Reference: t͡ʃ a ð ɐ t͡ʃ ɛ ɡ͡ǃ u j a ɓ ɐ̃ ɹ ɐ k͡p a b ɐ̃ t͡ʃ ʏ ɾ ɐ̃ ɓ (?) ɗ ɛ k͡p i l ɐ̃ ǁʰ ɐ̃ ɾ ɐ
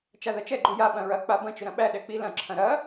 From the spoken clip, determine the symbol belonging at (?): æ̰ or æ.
æ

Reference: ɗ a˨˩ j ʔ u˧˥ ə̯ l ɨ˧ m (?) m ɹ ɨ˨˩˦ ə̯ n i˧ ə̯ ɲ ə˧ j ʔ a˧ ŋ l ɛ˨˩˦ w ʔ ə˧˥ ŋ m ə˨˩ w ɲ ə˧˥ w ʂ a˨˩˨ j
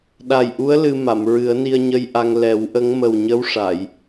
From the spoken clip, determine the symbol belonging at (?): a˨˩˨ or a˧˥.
a˨˩˨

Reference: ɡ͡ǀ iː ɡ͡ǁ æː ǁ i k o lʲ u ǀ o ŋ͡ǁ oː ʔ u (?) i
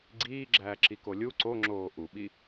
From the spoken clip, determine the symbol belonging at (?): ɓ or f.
ɓ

